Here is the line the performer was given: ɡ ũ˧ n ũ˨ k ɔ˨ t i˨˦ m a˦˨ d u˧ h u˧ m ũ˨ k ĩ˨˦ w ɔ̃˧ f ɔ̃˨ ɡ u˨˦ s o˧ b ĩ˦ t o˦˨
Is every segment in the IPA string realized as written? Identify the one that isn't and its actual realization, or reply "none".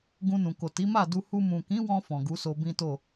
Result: ɔ˨ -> o˨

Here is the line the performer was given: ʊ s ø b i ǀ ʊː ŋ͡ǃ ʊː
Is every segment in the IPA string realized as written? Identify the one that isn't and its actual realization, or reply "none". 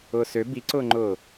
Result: ʊ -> ʊː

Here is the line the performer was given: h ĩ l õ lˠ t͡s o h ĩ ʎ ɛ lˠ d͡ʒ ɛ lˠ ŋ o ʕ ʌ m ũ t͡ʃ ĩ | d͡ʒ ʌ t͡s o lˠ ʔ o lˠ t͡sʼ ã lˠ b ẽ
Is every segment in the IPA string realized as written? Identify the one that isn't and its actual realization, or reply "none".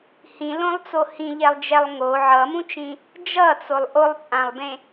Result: none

